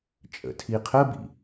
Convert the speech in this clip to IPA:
t͡ʃʼ ə̰ tʰ i qʰ ə b ḭ

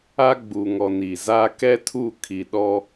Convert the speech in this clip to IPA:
a˦ ɡ͡b u˨ ŋ ɔ˨ n i˨ z a˦ k ɛ˦ tʰ u˦˨ kʰ i˨ ɗ ɔ˦

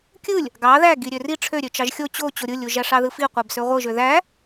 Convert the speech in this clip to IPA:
kʲ ɯ lʲ | ɡ ɑ ð æ ɡ i ɾʲ ø r i ʈ͡ʂʰ ø ɾʲ ø t͡ʃ ɑ ʒ xʲ o t͡ɕ o t͡ɕ o ɾʲ ɯ lʲ u ʒ æ ʂ ɑ ð ɯ f i qʷ æ b s ø ʁʷ ɯ ʒ ø ð æ

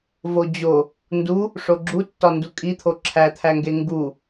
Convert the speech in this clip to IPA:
v o d͡ʑ o | n d u | ʂ o ɡ͡ǁ u tː ɒ n d u kʼ i t̪ʰ o ǁʰ æ t̪ʰ æ ŋ ɡ e ŋ ɡ u

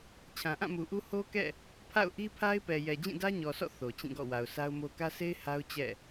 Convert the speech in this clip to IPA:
t͡ɕʰ ã˨ ʔ ã˦˨ m u˨ ʔ u˦ h o˦ k ɛ̰˦˨ | pʰ a̰˦˨ ʊ̯ ʔ i˦ pʰ a˦ ɪ̯ p ɛ˨ j ɛ˨ d͡ʑ ĩ˦˨ d ä˦ ɲ ɔ˨ s ɔ̰˦˨ θ o˨ t͡ɕ ĩ˦˨ ɡ ɔ̰˦˨ w a˨ ʊ̯ sʰ a˦ ʊ̯ m o˦ k ä˦ s e˦ ɪ̯ h a˦ ʊ̯ t͡ɕ ɛ̰˦˨

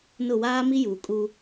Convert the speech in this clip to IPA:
n ʊ˦˨ w aː˦ m i˦ j uː˨ kʼ u˦

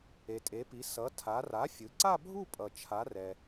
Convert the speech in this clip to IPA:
e˩ tʼ e˩˧ p i˩˧ s ʌ˩˧ tʰ a˩˧ r a˩˥ fʲ ɯ˩˧ ǀ a˥˧ bʱ u˥˧ pʼ ʌ˩ t͡ʃʰ a˩˧ r ɛ˩

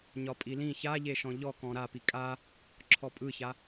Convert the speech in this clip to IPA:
ɲ ɒ pʼ i l ĩ ç a ʎ e ʃ ɔ̃ ʎ ɔ k ɔ̃ ɾ a p i kʼ a | ǁʰ ɔ pʼ ɯ ç a

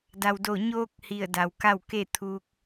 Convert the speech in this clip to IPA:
d a˩ w d o˧˩ ɲ oː˧ k̚ h i˧˩ ə̯ d a˩ w k a˥˨ w k e˥˨ t̪ʰ uː˧ k̚

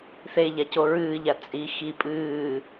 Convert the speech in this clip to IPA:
θ e ʎ a c o ɹ ɨː ʎ a t͡sʼ i x i pʼ ɨː

